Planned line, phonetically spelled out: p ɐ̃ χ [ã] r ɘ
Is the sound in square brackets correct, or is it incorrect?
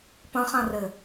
correct